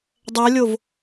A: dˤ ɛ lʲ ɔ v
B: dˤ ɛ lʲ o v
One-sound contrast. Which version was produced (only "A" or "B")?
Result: B